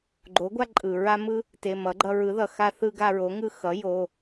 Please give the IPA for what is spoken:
ɡ͡ǃo˩˥ɡʷa˦ ǃʼɯ˩ɹa˦mɯ˦ | te˩˧˩mʌ˩˥ɡ͡ǃʌ˦ ɹɯ˩˥ðʌ˩xa˦θɯ˦ ɡa˦ɹo˩˥ŋɯ˦ xʌ˩˥ jo˩˧˩

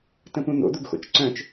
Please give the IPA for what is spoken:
tə̃pũn̪o̰ d̪uɡxo̰t͡ʃǀœ̃t͡ʃ

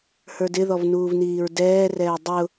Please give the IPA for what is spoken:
hə˞dɪðɔv nuːvniːɹdɛːrɛː dˤʊ

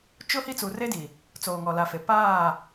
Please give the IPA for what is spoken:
t͡ʃʊ˦ hi˦t͡suː˨r e˦di˨ | t͡soː˨ŋɔ˨la˨fe˨ paː˦˨

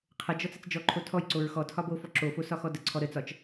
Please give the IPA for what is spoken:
qʰəd͡ʒɔt͡s ət͡sd͡ʒɔǃʰo tʰɔjǀoɹ xɔtʰɒ bofɔ ǁofo sɒxɔdəǀʰɔ ɾət͡sɒt͡ʃ

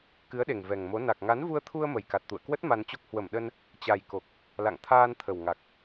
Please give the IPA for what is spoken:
kɨ˨˦ə̯ɗe˨˩ŋ vɛ˨˩ŋmo˨˦ na˨˩k̚ŋa˨˦nvu˧ə̯t̪ʰu˧ə̯ mə˨˩jka˨˩t̚t̪ṵ˧˨ə̯kwə˦˥t̚ ma˧nt͡ɕo˦˥k̚ hwə˧˩mɗə˧n | t͡ɕa˨˩jko˨˩k̚ | la̰˧˨ŋt̪ʰaː˧n t̪ʰə˨˩wŋa˨˩k̚

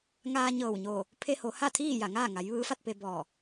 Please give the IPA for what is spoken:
ŋaː˧ɲɤː˧˩wɲoː˧˩ | pʰe˧ho˩˧ ha˥˨t̪ʰiː˥˨ ja˧˩ŋaː˥˨ŋa˩˧j ʋɯː˧˥fa˥˨t̚pe˧ bɔː˧˩

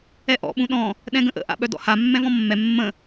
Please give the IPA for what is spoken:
ɛʔɔ̰ ɓũɗɔ̃ | ɗɛ̃ɡə̃ʔə̰ ʔa̰ɓœdɔ̰ha mːɛ̃vɔ̃mːɛ mːə̃

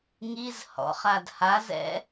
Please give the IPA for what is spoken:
ŋiz hɔ̰χad hazɛ̰

